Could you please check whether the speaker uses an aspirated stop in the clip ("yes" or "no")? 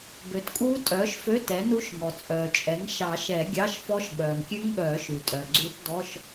no